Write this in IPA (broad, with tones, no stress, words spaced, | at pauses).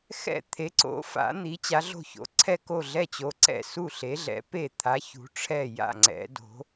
xɛ̰˥˩t̪ʰe˨˥ ǀo̰˨˥fa̰˨˥ n̪i˨˥t͡ɕa˨˥ɮo̤˥˩ ço̰˨˥ ǀʰɛ˥˩ko˥˩ɮɛ˥˩t͡ɕo˨˥ ǀɛ̰˥˩ su˥˩ɬe˨˥ɮɛ̰˨˥ pe˥˩t̪ʰa˨˥ çṳ˨˥ʈ͡ʂʰɛ˥˩ ja̰˥˩ŋ͡ǀɛ̰˨˥do̤˨˥